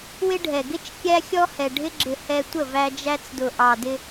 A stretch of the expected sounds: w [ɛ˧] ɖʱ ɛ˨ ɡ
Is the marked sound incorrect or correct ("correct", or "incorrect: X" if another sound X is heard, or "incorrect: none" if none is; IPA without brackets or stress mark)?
incorrect: ɪ˧